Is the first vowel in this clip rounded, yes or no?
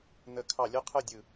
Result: no